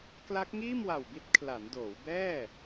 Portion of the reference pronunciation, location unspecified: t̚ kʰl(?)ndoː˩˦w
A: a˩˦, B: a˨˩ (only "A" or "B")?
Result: A